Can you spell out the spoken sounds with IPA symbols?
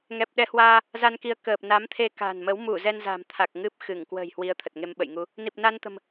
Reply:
ŋɛ˨˩p̚ ɗɛ˨˦hwaː˧ | za˧nki˨˦ə̯ kəː˨˩p̚ na˨˦mt̪ʰe˧ka̤˨˩nmə˨˦w mu˧˩ zɛ˧nza̤˨˩mt̪ʰa˨˩k̚ ŋɨ˦˥p̚xɨ˧˩ŋ kwə̤ː˨˩jhwi˨˦ə̯ t̪ʰə˨˩t̚ŋe˧mɓə̰˧˨jŋu˧ | ni˨˩p̚na˧nt̪ə̤˨˩m

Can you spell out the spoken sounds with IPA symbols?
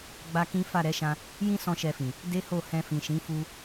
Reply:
ɡ͡ba˦kĩ˦ fa˦˨ɾɛ˨˦ʃã˧ | jĩ˦ sɔ̃˦ʃɛ˧fĩ˨ | de˦ho˦˨ hɛ̃˧fĩ˨ʃĩ˨˦ fu˧

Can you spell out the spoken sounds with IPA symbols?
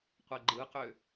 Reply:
qʷɛɡ͡ǃɯqʏ

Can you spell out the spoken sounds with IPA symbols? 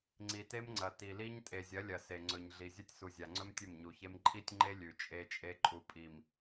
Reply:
ŋ͡ǀi˨te˦mŋ͡ǀɐ˨ ti˨li˦ɲ tʼe˨zʲɐ˨˦lʲɐ˨ se˨ŋ͡ǀɵ˨ɲ ɮi˨zʲɐ˦tʲ su˨zʲa˨ŋ͡ǀɵ˦m tʲɵ˦˨mɲu˨çe˦m ǃʼi˦tʲŋ͡ǃe˦ lʲʉ˨t͡ʃʼe˦t͡ʃʼe˦ ǃʼu˨pʼi˨m

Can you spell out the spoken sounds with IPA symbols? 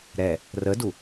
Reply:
ɾɛ | rədu

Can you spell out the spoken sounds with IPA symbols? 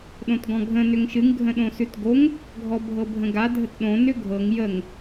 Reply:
ɗõtɡɔ̃ɡʱə̃ nʏŋʃɨŋ ɡʱə̃ɗõsʉtɡoŋ | ɡʱɔbʱɤbʱə̃ɡa dʱətɗõ nʏɡʱɤŋ jəŋ

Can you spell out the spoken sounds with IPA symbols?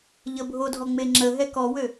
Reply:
ʎəbʱodʱɔ ŋ͡meŋ͡ǁəɦɛ kɔwø

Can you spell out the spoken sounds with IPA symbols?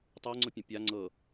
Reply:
tˤɤŋ͡ǀʊ pʲə̃pʲa ŋ͡ǀɤ

